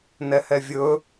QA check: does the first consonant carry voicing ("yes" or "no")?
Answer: yes